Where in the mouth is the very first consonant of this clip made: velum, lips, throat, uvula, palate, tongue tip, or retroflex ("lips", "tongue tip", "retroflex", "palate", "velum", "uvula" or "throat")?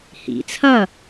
throat